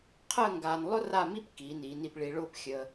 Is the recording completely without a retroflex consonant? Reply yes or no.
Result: no